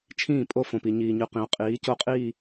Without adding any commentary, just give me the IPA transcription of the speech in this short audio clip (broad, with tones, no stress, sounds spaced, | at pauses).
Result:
t͡ʃʰ ĩː˦˨ pʼ o˦ f õ˨ p i˨ ɲ iː˨ ɲ ʉ˨ q ĩ˨ ʊ̯ qʼ iː˨˦ c o˦ qʼ iː˦˨